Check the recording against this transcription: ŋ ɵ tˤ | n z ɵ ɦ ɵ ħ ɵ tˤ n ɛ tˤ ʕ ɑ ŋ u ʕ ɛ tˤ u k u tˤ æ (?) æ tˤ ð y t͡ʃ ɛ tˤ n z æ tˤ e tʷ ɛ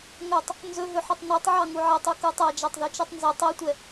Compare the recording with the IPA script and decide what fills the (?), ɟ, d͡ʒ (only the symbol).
d͡ʒ